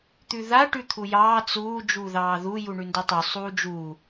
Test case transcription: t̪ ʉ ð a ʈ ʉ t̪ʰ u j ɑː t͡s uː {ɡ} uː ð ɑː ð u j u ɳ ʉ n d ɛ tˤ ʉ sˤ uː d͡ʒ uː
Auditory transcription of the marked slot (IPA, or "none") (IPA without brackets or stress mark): d͡ʒ